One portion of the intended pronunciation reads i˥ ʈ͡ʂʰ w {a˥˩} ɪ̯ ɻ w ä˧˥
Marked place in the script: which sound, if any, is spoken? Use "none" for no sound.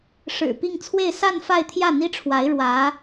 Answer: a˧˥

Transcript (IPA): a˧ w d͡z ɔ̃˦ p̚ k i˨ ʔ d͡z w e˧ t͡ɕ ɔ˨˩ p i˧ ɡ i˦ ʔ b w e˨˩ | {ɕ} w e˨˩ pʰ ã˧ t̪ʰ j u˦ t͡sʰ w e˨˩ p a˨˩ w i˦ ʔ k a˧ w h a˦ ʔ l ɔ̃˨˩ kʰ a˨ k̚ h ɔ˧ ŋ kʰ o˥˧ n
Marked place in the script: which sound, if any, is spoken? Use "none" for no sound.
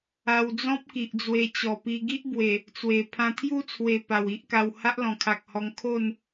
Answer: t͡s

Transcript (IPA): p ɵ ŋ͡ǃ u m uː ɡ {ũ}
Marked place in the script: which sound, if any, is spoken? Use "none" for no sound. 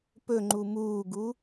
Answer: u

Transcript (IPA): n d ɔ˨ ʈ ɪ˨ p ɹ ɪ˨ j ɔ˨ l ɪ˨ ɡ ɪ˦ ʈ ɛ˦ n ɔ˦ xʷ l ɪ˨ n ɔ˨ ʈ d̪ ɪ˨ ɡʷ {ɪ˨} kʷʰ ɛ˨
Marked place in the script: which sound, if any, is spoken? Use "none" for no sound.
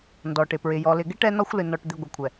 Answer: ɪ˨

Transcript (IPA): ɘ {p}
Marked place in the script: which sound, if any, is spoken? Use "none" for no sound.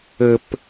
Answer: p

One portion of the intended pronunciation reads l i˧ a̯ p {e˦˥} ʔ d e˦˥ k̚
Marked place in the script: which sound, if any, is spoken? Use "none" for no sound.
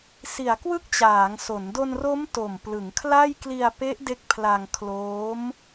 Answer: e˦˥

